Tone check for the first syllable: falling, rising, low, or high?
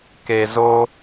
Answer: low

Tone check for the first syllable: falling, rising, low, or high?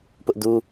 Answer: high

